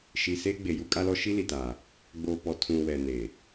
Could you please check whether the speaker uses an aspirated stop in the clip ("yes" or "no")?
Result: yes